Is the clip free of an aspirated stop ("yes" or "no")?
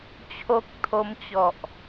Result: no